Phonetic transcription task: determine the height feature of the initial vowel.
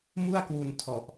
high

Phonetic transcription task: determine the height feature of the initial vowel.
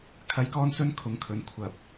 low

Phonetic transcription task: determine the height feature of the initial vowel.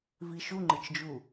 high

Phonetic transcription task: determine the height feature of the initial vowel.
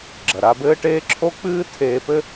low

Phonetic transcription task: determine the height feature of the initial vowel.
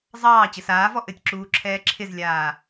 low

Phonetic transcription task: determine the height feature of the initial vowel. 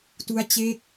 high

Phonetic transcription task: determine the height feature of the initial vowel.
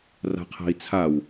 low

